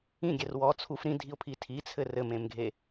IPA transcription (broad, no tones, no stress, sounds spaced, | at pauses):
ĩ ɡʲ ɛ r w ɔ t͡sʰ u f ɾ ĩ dʱ i ʊ̯ pʰ i tʰ i t͡sʰ ɘ r ɘ m ẽ m ɡʱ e